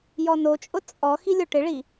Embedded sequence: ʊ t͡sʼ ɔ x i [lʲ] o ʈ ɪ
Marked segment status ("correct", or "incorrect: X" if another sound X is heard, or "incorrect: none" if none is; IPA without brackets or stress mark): correct